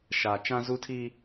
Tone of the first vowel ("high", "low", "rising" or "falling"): low